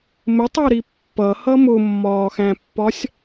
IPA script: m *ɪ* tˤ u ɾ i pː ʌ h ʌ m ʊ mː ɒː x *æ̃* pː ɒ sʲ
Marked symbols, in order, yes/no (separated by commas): yes, yes